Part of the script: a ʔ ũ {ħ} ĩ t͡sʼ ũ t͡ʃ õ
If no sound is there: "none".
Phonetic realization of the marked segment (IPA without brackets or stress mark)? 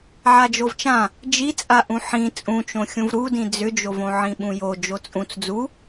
ħ